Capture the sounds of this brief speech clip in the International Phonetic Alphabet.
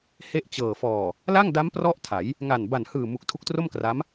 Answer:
he˥˩ʔt͡ɕɤː˨˩ fɔː˨˩ | la˥˩ŋda˦˥m prɔ˥˩ʔtʰa˩˦j | ŋa˨˩n ba˨˩nhɯː˨˩ mu˨˩k̚tʰu˦˥k̚tro˥˩mkra˦˥m

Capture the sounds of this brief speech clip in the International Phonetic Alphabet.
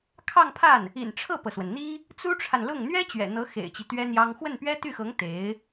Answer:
kʰɑ˥˧ŋpʰa˥˩n | ḭ˨˩nʈ͡ʂʰɤ˥˩pɤ˩swə˩n n̪i˥ | t͡su˥ʈ͡ʂʰa˨nlʊ˥˩ŋ n̪ɥɛ˥ t͡ɕɥɛ̰˨˩n̪ɤ˧˥ xḛ˨˩ɪ̯t͡ɕi˦ t̪ɥɛ˥n̪jɑ˥ŋ xwə˥˩npɥɛ˥t̪y˥˩xɤ˧˥ŋ t̪e˧˥ɪ̯

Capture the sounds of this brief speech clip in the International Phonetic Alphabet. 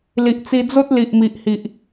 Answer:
li˨ʔt͡si˧d͡zo˦t̚ li˨ʔmi˨ʔhi˨ʔ

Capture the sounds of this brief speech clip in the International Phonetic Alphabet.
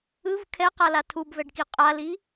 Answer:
ɯv kʰɛqala tʰubvɛɖki qʼali

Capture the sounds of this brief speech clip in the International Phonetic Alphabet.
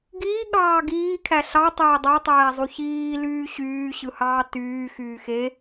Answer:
ɡiːɠɑː ɡiːkʰæ ɬɑtˤeː dˤɑtˤæːzˤu çiːlyː ɕyːɕɯhɑː tyːxyː xe

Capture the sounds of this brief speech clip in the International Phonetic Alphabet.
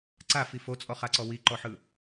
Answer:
ǀafi fot͡sʼɔχaǀɔ wiǃɔħɯ

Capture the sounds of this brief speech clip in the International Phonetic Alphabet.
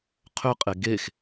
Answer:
qʰʏqʼe ɡex

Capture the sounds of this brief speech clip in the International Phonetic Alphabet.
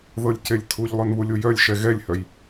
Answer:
ðɤlʲcelʲtʰuʎ lˠœnβulʲujœlʲ ʃɛɣɛlʲhœj

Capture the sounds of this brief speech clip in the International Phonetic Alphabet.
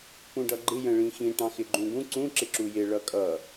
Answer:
pũɖʌɡ͡ǃɪ jə̃ɭĩxĩ ʈɑ̃xɪɡ͡ǃũɡũ ǀũ ǁɪǁujɪ ɭʌkʼʌ

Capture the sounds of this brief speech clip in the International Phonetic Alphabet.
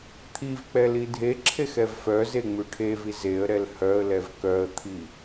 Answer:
t̪ʰivk͡pɛ lidʱeǁʰex ɛvfœze ŋ͡mʉʈʰevi zeə̯ ɾɛlhœə̯lɛv kœə̯t̪ʰi

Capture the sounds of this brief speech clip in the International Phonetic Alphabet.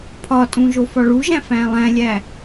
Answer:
pʰɒtʼũ ʒofɒɭuʒæ̃ fæ̃lˠæ̃lʲæ

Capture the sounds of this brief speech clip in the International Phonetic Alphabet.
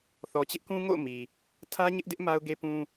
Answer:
θɔ˨t͡ɕɪ˦ʔkũ˦ŋo̰˦˨ʊ̯ mi˨ | tʰä˦ɲɪ˦ʔdɪ˦ʔ ma˦ʊ̯ɡe˦pũ˦

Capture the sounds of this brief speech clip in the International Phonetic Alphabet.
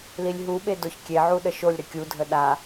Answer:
lilʲɦuɓe doçkʲeʕu ɗəʃolʲɾɘ kʲudʱə ɗa

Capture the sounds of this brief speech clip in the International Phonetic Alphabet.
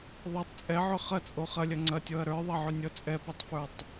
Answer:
ðˤʌtˤ t͡sʼɛʕʏ χɐt͡sʼo χɐlʲɐ ŋ͡ǀɐtʲɔɐ̯ ɾə˞ðˤɐʕʏnʲɔ t͡sʼɛpotˤfə˞tˤ

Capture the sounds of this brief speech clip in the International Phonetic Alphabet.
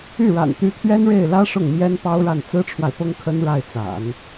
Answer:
y˥˩ɻa̰˨˩nt̪y˧˥ t̪ʰɥɛ˥nɻe˥˩ɪ̯lä˥ ʂʊ˥˩ŋmjɛ˥n pɑ˥ʊ̯ɻa˥˩n t͡sɹ̩˥ʈ͡ʂʰwa˨ɪ̯ pʊ˥ŋkʰə˥n ɻa˥˩ɪ̯t͡sa̰˨˩˦n

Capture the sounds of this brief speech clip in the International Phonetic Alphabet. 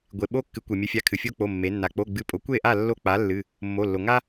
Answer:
ɡʷe˩ɓo˦ kːɨ˩˧kʷe˩mʲɨ˩˧fʲa˩˧˩ kʰɨ˩fʲo˦k͡po˩˧˩ mːe˩˧nːa˩ k͡po˩˧˩ɡ͡bɨ˩˥ pʼo˩˥kʷe˥˨ʔa˥˨ lːo˦k͡pa˩˥lːɨ˩˧˩ | mːo˩˧˩ lːo˩ŋa˦

